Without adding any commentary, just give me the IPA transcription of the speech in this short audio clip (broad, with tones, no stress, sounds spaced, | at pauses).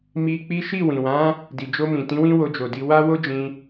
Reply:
m i˧ k͡p i˦ ʃ i˦˨ w ĩ˨ w ã˨˦ | d i˨ d͡ʒ o˧ m ĩ˨ t ĩ˨˦ w ĩ˦ w o˧ d͡ʒ o˨ d i˧ w a˦ w o˦ d͡ʒ ĩ˧